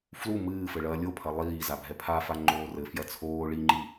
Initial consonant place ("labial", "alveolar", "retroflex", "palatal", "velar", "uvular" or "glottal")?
labial